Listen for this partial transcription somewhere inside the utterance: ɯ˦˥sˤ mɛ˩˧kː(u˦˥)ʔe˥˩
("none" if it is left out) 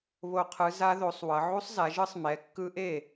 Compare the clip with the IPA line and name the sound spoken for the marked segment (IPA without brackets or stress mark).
ɯ˦˥